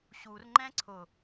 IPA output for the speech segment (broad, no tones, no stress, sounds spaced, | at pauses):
ɕ u r ŋ͡ǃ ɛ̃ ǀʰ ʊ